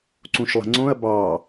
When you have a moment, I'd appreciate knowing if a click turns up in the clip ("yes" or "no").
yes